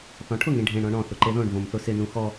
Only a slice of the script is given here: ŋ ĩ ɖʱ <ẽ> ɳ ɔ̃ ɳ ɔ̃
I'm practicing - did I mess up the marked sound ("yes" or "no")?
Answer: no